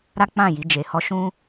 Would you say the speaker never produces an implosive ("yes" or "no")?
yes